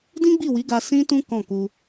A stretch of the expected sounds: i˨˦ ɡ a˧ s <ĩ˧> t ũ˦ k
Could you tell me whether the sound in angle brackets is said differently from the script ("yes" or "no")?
yes